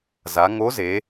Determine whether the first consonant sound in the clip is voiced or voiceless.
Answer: voiced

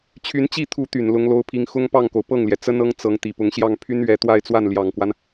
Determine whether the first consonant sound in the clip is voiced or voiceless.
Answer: voiceless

